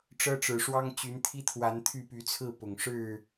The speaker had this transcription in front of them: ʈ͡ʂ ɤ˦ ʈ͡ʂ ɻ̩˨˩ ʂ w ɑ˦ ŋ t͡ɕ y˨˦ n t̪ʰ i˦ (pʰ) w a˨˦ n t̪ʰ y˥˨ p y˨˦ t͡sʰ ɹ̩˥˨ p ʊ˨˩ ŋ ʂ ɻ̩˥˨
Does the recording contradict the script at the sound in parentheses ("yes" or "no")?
yes